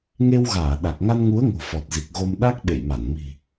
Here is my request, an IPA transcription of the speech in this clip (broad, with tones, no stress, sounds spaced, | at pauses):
ŋ e˧ w ɣ aː˧˩ ɗ a˨˩ k̚ ŋ a˧ n ŋ u˨˦ ə̯ ŋ o̤˨˩ f ɔ˨˩ t̚ z i˨˩ k̚ ɣ o˧ m ɗ a˦˥ k̚ ɓ ḛ˧˨ j m a˧˩ n m i̤˨˩